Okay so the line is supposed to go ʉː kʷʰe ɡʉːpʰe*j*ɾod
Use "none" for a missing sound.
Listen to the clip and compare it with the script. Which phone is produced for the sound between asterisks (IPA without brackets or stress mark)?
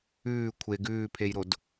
j